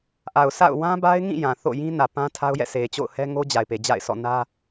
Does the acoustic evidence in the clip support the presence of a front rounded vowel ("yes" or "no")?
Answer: no